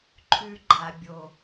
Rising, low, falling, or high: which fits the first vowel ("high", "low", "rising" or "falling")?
high